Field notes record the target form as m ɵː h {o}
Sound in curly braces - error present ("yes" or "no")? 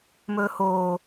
yes